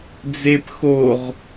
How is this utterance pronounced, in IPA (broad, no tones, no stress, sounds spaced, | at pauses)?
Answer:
d͡z e p x o ʁ